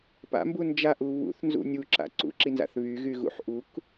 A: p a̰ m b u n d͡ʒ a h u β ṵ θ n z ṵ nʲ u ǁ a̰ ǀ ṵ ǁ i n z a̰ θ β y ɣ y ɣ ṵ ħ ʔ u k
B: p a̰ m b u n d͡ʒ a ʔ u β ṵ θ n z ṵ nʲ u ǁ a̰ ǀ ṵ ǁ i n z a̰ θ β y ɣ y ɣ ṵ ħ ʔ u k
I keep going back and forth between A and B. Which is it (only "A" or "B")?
B